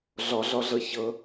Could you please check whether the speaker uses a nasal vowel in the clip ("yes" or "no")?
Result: no